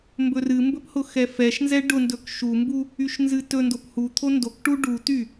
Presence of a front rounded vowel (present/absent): present